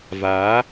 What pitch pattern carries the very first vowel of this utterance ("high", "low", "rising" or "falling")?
rising